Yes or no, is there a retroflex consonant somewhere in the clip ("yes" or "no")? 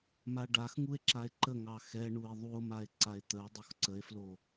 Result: yes